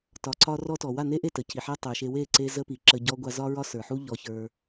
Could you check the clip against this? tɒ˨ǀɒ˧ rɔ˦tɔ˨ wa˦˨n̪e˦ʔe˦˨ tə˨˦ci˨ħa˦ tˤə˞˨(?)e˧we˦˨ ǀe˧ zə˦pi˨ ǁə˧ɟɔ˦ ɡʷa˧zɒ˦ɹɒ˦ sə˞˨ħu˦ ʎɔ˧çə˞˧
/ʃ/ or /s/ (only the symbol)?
ʃ